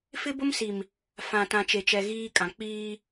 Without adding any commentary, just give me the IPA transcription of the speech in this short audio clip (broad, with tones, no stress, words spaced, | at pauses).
fɪ˦bʊ˦msi˨m | fã˨tã˨t͡ʃe˨t͡ʃɛ˨ ɣiː˦kʼã˨ k͡piː˦